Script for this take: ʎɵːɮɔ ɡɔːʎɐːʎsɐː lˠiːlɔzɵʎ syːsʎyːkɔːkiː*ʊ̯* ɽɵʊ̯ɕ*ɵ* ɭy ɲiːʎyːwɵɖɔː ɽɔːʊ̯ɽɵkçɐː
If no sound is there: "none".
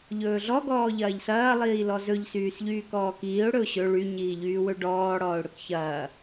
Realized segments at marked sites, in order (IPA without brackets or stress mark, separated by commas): ʊ̯, ɵ